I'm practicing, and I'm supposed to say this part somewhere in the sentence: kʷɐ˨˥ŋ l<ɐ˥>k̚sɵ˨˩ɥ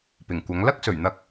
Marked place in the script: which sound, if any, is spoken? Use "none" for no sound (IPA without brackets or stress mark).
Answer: ɐ˥